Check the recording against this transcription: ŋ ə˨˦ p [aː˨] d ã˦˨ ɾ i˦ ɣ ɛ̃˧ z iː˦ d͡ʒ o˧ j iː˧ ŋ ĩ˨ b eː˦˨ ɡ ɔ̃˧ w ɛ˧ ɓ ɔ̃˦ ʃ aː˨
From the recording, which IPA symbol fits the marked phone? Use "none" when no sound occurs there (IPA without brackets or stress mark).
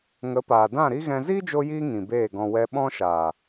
aː˨